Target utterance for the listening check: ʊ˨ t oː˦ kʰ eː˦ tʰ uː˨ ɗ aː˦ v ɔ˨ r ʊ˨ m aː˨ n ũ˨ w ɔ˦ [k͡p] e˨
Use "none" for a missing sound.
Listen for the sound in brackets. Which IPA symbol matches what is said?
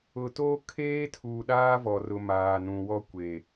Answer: kʷ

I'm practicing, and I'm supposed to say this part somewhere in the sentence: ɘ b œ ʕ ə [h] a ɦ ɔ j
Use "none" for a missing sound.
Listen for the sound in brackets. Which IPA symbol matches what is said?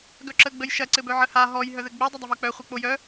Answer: h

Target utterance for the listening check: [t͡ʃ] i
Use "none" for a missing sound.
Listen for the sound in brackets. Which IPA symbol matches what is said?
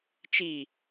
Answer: t͡ʃ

